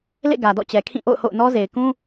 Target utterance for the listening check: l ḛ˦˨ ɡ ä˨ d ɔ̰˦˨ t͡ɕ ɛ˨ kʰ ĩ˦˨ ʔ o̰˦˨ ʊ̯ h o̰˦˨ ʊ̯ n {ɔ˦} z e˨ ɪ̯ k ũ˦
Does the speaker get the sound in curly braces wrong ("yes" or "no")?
no